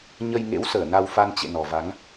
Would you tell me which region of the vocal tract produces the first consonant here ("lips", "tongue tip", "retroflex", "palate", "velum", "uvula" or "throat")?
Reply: palate